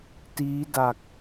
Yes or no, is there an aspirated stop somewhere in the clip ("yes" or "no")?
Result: no